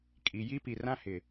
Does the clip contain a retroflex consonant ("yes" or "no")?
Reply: no